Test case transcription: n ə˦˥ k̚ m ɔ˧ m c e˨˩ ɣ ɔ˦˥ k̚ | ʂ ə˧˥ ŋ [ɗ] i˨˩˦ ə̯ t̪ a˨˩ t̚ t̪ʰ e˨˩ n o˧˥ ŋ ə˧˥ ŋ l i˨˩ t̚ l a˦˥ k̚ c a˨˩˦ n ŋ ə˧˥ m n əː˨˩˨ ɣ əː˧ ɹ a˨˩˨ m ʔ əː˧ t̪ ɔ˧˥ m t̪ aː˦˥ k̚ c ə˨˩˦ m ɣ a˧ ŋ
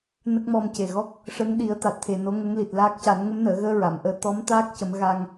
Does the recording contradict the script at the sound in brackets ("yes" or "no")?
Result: no